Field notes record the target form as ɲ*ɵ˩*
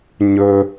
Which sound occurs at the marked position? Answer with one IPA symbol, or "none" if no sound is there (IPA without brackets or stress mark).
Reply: ɵ˩